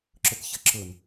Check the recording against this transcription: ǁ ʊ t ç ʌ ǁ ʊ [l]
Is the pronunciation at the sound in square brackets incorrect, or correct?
incorrect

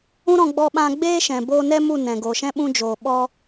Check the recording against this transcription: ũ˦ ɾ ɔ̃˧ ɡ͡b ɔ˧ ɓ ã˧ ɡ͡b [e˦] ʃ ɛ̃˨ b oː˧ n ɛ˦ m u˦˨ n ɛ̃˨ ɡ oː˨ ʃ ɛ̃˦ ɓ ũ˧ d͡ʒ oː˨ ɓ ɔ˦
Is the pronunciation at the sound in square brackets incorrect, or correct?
incorrect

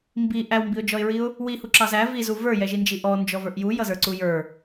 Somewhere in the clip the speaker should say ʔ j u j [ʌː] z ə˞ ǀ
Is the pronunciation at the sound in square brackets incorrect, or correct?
incorrect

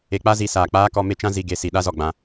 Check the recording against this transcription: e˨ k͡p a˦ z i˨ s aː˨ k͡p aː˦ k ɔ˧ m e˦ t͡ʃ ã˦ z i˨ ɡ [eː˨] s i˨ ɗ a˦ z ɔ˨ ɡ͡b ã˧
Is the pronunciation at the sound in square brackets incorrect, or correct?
incorrect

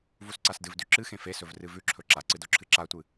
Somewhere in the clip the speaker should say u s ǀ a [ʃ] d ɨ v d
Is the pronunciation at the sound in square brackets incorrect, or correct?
incorrect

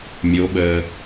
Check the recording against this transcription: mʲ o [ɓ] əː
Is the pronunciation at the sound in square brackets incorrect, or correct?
correct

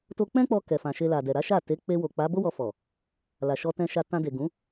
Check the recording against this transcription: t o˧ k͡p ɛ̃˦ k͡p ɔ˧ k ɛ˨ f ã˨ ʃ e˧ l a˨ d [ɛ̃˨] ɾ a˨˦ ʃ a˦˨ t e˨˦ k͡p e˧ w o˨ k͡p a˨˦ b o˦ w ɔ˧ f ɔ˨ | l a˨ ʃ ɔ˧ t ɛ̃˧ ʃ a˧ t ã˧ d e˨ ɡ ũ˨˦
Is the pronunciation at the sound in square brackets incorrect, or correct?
incorrect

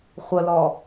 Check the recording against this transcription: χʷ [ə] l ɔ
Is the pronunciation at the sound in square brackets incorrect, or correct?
correct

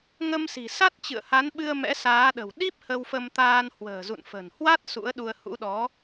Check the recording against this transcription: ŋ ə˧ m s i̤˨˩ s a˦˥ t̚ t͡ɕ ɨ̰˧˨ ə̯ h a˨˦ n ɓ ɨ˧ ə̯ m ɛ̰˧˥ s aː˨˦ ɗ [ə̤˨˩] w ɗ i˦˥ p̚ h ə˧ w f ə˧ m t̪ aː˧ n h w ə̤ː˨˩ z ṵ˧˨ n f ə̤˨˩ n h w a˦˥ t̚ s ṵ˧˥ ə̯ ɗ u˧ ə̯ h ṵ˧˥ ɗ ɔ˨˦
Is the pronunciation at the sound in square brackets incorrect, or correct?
correct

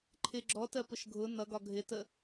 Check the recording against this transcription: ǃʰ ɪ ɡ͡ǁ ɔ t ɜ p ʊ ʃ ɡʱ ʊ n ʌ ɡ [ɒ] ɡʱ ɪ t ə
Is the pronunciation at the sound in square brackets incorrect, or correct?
correct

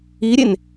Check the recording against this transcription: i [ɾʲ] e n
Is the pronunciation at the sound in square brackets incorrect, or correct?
correct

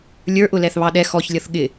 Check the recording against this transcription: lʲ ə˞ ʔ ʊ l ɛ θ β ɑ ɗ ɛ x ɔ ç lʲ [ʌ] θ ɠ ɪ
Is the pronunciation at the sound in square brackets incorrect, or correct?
correct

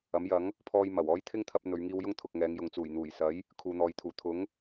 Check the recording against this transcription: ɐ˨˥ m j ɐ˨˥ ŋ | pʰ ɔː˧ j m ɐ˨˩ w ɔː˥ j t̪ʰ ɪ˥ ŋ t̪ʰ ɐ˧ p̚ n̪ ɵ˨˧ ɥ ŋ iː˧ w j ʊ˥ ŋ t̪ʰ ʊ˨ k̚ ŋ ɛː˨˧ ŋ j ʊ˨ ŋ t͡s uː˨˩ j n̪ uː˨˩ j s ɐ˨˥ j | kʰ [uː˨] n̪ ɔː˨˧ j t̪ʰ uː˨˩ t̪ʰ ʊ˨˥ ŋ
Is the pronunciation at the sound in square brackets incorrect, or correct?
correct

